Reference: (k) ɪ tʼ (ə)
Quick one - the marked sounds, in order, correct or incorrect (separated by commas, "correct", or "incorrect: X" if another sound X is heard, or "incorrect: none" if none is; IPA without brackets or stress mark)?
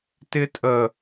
incorrect: t, correct